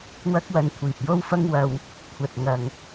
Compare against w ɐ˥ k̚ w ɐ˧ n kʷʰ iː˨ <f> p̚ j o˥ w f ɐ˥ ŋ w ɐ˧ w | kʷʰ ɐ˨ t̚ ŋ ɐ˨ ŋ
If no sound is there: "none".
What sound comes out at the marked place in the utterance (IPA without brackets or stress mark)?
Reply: none